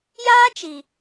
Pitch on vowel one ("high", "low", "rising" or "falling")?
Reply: high